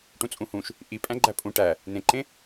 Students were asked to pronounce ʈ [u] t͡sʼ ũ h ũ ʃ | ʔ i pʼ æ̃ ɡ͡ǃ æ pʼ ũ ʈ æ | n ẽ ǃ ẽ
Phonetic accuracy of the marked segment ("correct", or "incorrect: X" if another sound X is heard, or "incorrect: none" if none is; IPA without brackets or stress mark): incorrect: ũ